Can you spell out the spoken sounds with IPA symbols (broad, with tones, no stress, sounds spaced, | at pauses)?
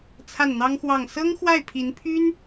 t͡sʰ a˥˩ n n̪ ɑ˥ ŋ x w ɑ˥˩ ŋ s ɤ˥ ŋ x w a˥˩ ɪ̯ pʰ i˧˥ n pʰ y˥ n